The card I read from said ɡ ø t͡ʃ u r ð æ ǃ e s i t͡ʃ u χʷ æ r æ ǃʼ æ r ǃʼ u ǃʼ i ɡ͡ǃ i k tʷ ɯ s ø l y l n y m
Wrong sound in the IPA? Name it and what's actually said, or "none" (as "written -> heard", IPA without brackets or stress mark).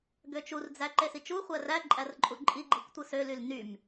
ð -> d͡z